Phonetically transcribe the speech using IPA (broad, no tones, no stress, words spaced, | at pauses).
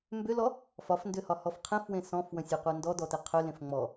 mbʏlɔ | fɒfndʏhɒhɔf qʰẽfwẽ sɔ̃fwə̃sʲeqʷe ndɔdɔte qʰʏlẽf ŋ͡mɔ